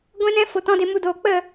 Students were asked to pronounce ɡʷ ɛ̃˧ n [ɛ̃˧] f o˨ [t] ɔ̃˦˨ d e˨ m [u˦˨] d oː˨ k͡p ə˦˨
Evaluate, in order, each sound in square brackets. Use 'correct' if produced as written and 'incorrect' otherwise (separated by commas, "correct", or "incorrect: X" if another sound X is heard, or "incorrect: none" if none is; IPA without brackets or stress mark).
correct, correct, incorrect: u˧